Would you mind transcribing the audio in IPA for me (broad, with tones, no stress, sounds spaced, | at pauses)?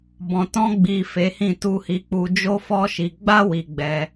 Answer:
b ɔ̃˨ t ɔ̃˧ ɡ͡b i˨ f e˨˦ h ĩ˦˨ t u˧ h i˧ k͡p u˧ d͡ʒ o˦ f ɔ˦ ʃ i˧ ɡ͡b a˦ w i˧ ɡ͡b ɛ˧